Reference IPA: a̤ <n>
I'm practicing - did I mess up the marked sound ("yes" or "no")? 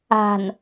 no